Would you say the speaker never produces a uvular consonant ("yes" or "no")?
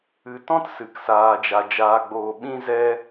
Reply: yes